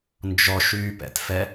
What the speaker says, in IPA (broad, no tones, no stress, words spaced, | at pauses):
nd͡ʒɔʃyːpɛ̰tfɛ